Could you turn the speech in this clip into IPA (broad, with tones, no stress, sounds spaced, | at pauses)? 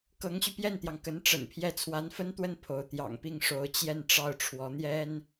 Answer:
k ɤ˧˥ ŋ ɕ y˧ p j ɛ˥˩ n t̪ j ɑ˩ ŋ k ə˧˥ n ʈ͡ʂ ə̰˨˩ n pʰ j ɛ˥˩ t͡sʰ w a˧˥ n f ə˥ n t̪ w ə˥˩ n pʰ o˧˥ ʊ̯ t̪ j ɑ̰˨˩ ŋ p i˥˩ ŋ ʂ o˧˥ ʊ̯ t͡ɕ j ɛ˥˧ n ʈ͡ʂ ɑ˥˩ ʊ̯ ʈ͡ʂʰ w ɔ˧˥ n̪ j ɛ˥ n